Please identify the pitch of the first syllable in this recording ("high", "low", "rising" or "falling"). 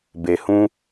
low